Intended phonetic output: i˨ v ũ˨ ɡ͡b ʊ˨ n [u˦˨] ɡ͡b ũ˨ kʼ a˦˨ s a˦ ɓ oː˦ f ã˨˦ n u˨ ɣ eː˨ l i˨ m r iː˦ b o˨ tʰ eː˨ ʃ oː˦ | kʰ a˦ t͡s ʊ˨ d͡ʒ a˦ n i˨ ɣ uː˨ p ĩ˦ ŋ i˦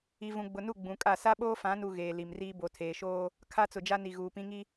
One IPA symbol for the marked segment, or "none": u˦˨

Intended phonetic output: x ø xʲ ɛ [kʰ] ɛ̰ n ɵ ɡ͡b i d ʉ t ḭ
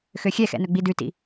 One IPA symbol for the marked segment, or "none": x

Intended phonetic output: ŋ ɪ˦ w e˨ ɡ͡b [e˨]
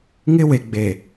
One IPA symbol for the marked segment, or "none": e˨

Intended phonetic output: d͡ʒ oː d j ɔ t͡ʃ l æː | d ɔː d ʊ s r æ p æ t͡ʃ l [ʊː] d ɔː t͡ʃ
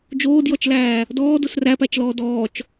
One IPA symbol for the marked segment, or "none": ɔː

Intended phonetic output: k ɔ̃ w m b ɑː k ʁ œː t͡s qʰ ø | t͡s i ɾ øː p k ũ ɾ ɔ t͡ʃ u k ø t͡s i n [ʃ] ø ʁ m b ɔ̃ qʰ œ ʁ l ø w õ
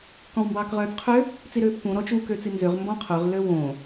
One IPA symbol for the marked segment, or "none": z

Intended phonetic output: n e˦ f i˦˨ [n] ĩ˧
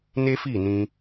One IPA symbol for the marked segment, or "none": n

